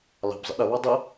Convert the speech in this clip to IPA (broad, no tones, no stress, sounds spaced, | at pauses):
l ɑ̤ b zˤ ə̰ ɗ ə β ɑ dˤ ə